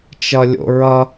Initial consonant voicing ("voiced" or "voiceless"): voiceless